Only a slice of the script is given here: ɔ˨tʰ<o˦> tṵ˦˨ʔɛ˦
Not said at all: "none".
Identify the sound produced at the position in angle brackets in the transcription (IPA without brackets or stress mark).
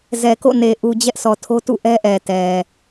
o˦